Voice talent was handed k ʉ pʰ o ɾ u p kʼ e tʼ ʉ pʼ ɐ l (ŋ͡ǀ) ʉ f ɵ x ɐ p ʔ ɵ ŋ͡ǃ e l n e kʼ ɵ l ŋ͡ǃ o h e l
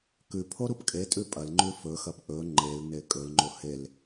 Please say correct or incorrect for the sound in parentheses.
incorrect